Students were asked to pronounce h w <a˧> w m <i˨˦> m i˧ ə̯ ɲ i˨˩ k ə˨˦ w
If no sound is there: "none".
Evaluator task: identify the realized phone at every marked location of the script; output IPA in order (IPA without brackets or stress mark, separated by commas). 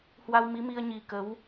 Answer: a˧, i˨˦